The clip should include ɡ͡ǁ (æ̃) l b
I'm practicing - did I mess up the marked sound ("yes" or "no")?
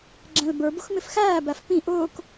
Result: no